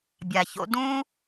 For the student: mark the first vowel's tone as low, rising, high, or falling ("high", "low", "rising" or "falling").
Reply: low